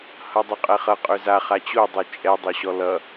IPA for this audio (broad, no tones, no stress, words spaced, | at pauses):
hʌdˤøqʼɛχʌ qʼøza χat͡ɕo dˤot͡ʃʼɛ dˤoɕɔlʌ